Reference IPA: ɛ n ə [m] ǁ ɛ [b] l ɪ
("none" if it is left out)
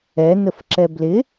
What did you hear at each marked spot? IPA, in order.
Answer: f, b

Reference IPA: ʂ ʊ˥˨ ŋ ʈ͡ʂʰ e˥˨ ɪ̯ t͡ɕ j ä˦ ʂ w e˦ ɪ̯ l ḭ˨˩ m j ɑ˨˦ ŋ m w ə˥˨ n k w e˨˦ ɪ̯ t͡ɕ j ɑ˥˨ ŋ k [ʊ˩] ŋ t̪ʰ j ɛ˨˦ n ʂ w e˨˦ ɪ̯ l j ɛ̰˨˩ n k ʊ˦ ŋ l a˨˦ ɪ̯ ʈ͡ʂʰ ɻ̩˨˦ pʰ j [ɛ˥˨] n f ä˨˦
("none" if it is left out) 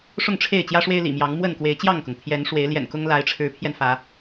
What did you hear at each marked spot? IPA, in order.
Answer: ʊ˩, ɛ˧

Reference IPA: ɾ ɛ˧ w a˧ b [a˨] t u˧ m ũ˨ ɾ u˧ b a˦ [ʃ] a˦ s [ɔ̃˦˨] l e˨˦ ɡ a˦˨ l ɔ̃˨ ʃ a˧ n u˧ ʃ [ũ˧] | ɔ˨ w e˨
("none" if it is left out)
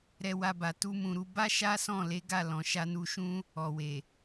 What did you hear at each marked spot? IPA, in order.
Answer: a˨, ʃ, ɔ̃˦˨, ũ˦

